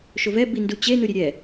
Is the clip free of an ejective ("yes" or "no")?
yes